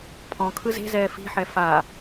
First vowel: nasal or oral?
nasal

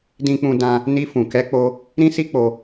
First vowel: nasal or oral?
nasal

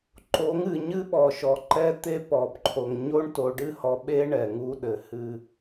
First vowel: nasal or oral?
oral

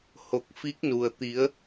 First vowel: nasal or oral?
oral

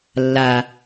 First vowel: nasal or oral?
oral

